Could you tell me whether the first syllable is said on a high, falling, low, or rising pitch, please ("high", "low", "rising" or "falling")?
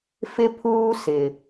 high